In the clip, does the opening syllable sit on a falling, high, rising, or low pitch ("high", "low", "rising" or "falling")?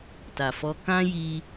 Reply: low